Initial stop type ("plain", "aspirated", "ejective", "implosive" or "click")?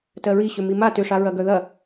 plain